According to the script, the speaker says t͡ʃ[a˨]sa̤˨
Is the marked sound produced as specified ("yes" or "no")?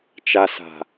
yes